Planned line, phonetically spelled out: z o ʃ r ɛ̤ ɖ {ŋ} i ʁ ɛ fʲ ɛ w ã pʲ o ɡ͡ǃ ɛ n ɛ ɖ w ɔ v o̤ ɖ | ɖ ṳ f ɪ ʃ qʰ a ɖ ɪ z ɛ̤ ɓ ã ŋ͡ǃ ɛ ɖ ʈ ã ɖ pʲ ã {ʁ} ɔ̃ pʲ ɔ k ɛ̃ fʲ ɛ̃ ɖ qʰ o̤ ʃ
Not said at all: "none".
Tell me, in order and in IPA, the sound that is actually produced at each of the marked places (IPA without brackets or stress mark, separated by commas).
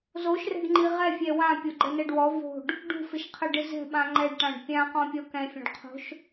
ŋ͡ǃ, q